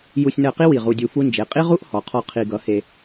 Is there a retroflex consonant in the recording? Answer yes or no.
no